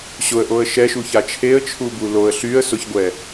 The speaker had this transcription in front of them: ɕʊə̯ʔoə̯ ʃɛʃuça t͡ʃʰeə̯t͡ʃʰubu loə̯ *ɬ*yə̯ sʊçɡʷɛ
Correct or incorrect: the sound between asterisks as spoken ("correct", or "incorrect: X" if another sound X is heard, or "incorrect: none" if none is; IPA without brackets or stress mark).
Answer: correct